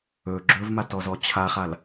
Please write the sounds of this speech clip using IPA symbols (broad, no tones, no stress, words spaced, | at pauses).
ɵ ɡ͡ǁɵvmat ɔzɔt͡ɕʰaχal